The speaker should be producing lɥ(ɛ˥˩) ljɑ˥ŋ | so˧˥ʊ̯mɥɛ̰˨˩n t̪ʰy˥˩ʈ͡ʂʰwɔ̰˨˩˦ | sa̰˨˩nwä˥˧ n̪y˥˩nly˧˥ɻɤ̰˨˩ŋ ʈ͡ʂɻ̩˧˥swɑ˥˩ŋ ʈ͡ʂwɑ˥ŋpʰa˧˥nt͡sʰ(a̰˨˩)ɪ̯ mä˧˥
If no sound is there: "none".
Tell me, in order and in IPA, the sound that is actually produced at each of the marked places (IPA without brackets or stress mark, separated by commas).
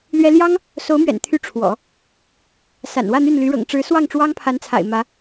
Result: ɛ˥, a̰˨˩